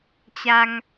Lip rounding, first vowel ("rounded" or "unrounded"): unrounded